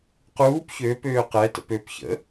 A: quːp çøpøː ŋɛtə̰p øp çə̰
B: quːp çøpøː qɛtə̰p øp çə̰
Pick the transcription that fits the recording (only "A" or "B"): B